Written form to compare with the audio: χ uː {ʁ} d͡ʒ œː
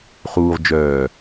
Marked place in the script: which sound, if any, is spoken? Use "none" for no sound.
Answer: ʁ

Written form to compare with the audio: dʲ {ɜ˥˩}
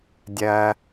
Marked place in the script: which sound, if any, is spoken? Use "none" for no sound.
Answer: ɜ˩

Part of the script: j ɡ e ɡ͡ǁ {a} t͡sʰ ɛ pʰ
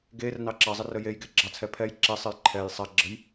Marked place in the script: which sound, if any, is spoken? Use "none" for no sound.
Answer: ɑ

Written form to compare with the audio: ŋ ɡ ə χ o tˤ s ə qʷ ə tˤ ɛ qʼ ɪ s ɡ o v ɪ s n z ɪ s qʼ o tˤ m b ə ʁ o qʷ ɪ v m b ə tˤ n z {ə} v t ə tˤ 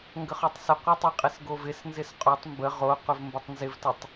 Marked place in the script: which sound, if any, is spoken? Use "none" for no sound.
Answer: ɪ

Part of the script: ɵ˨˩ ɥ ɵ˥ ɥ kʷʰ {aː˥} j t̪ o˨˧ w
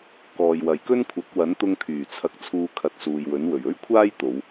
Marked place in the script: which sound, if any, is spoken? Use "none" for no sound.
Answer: aː˥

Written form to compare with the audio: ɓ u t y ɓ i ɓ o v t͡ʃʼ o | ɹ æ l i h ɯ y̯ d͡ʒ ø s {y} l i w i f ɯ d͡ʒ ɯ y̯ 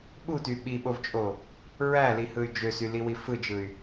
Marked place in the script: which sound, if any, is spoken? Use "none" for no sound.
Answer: y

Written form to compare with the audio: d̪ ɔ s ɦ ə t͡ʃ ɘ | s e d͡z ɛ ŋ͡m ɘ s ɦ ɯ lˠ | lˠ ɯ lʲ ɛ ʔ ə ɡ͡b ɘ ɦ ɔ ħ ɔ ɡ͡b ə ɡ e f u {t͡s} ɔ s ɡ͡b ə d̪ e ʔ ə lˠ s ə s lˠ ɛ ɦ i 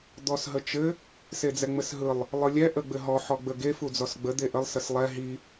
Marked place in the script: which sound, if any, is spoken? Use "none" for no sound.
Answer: d͡z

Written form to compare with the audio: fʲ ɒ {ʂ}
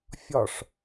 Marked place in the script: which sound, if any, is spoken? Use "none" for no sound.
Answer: ʂ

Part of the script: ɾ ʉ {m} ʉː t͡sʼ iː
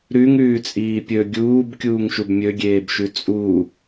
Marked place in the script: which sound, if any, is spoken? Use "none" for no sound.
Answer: ŋ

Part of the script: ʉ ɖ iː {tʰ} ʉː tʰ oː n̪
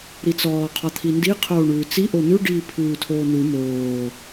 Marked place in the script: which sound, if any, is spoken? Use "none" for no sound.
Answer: pʰ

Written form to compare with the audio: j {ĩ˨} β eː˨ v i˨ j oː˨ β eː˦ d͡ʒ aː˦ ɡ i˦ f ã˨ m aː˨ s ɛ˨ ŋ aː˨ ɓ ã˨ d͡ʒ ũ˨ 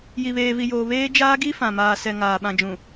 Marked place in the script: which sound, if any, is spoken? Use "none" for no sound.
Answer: i˨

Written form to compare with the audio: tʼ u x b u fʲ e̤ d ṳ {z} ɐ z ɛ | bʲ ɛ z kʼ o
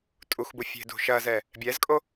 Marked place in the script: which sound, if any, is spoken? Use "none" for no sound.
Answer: ʃ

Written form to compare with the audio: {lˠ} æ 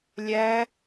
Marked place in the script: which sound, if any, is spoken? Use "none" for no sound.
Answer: lʲ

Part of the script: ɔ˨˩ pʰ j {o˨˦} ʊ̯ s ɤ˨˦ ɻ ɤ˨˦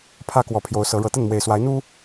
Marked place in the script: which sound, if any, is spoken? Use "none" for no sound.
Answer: o˨˦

